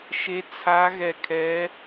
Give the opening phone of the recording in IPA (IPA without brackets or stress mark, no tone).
ʃ